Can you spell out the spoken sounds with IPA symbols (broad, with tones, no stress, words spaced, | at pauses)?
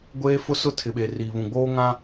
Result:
ɡʷeː˦fʊ˦sʊ˦ tʰɪ˨ɓe˨ riː˨βũ˨ɡ͡boː˦ ŋã˦